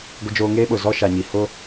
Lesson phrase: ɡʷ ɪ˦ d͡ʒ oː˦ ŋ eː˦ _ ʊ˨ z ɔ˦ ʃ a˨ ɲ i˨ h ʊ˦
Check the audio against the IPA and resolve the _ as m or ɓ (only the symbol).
ɓ